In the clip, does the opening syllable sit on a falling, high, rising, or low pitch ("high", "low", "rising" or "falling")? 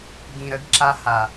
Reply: low